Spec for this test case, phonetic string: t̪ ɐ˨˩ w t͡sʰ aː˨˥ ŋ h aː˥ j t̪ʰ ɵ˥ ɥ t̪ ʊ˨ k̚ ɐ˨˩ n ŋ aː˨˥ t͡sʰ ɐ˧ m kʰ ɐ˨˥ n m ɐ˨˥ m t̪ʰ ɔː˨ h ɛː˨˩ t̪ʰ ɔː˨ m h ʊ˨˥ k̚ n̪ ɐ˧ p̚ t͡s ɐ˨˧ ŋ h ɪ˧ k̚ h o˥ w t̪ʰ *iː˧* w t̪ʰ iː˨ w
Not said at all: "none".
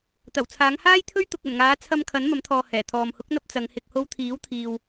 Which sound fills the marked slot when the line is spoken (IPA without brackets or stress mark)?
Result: iː˨˥